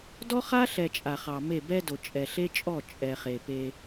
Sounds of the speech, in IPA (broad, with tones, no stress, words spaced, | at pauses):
dɔ˦χa˦ɬɛ˨ t͡ʃʼa˨χɑ˨me˦˨ bɛ˦do˨ t͡ʃʼɛ˨ɬe˦t͡ʃʼɔ˦˨ t͡ʃʼɛ˨χe˨pe˦